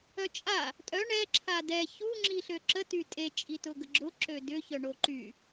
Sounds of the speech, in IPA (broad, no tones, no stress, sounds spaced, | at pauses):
œ t͡ʃʼ a | tʼ œ ɳ ɛ ǁʰ a d ɛ ç u ŋ͡ǁ i ɬ ø ǁ ə t y tʼ e t͡ʃʼ i t ʊ ɡ ə ɡ͡ǁ ʊ ǁ ø d ʏ ç œ ɳ o ǃ y